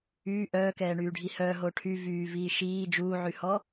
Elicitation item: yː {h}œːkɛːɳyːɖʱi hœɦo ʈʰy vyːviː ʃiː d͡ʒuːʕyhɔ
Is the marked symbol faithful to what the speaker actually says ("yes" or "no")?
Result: no